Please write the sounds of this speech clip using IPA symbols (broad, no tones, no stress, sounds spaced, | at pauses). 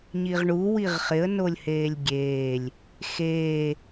ɲ i ʁ ɳ u w i ʁ χ ɪ ə̯ n o lʲ h eː lʲ ɡʲ eː lʲ | x eː